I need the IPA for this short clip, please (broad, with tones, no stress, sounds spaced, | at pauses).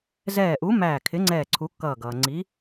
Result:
z ɛː˧˩ ʔ u˨˥ m æː˧˩ kʰ ɪ˨˥ ŋ͡ǀ ɛː˧˩ ǀʰ u˨˥ kː ʌː˧˩ ɡ ʌː˩ ŋ͡ǀ i˨˥